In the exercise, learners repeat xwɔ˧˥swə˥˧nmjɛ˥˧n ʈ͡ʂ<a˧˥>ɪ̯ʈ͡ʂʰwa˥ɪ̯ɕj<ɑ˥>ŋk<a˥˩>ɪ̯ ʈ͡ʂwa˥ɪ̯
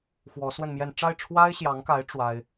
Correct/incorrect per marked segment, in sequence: incorrect, incorrect, incorrect

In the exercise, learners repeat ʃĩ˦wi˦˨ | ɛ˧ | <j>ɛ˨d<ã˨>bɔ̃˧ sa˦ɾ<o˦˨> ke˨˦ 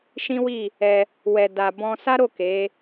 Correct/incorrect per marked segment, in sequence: incorrect, incorrect, correct

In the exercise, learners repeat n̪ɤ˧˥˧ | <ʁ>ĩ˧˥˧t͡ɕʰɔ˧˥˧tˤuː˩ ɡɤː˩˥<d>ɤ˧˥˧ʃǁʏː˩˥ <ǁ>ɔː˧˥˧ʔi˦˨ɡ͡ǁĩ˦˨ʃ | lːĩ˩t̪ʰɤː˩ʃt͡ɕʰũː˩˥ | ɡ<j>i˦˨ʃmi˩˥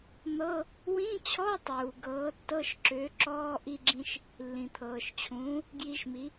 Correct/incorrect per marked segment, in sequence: incorrect, incorrect, correct, correct

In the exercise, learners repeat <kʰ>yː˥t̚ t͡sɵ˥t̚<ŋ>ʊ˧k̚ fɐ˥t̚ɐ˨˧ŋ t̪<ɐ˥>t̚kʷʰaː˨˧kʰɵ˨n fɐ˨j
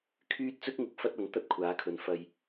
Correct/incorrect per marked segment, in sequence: correct, correct, correct

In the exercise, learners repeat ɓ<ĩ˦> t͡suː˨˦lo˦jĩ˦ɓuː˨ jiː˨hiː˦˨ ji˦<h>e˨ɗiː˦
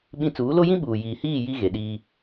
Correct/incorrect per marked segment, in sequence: correct, incorrect

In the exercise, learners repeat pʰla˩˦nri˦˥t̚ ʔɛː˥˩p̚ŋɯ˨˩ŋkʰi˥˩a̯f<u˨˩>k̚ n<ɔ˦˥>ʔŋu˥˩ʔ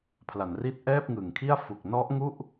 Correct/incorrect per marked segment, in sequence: correct, correct

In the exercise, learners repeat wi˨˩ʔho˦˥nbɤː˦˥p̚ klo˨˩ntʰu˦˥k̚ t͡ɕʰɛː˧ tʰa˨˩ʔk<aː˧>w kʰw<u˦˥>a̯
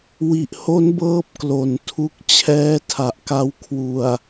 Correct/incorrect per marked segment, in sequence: incorrect, incorrect

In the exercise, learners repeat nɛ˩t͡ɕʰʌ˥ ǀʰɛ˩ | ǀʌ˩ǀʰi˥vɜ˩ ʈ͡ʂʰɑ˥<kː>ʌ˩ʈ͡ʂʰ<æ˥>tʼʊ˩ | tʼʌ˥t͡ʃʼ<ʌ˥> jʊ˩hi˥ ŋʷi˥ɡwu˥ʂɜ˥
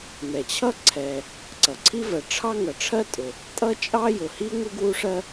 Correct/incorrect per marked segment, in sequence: incorrect, incorrect, incorrect

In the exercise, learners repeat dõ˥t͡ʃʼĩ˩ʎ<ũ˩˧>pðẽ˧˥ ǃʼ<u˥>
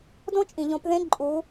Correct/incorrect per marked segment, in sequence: incorrect, incorrect

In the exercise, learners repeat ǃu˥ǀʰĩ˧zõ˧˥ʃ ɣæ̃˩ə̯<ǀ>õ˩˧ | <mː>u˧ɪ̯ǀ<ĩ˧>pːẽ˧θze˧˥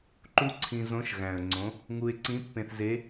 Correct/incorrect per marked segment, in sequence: incorrect, incorrect, incorrect

